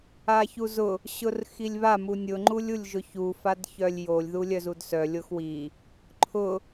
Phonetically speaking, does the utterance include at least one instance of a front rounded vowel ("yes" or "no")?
yes